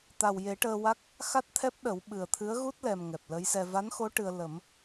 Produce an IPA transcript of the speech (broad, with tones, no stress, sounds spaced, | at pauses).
t̪ a˨˩ w j e˨˩˦ ʈ əː˧ w a˦˥ k̚ | x a˦˥ t̚ t̪ʰ ɛ˦˥ p̚ ɗ ə˨˩˦ w ɓ ɨ˨˩ ə̯ t̪ʰ ɨ˧˥ ə̯ ɣ u˦˥ t̚ l ɛ˨˩ m ŋ ɛ˨˩ p̚ l ə˧˥ j s ɛ˧ v a˧˥ n x o˧˥ ʈ ɨ˧ ə̯ l ə˨˩˦ m